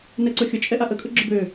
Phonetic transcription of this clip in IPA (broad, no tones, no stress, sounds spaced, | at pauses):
n ɛ ǀ ʊ xʲ ʊ t͡ʃʼ ɛ ʔ a ʔ ə kʼ ʊ ɡ͡ǁ ʊ b ø